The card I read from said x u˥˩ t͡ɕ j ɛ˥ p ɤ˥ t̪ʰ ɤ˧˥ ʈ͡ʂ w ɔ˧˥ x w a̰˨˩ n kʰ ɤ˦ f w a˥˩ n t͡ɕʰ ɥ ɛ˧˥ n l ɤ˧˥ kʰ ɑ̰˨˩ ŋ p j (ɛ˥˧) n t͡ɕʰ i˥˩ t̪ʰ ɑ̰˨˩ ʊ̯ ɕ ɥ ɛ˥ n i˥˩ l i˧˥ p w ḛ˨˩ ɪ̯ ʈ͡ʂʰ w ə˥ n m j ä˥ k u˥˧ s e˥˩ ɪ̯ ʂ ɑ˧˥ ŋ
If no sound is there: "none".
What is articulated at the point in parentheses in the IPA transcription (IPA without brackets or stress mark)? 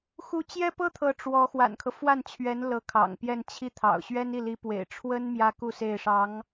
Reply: ɛ˥˧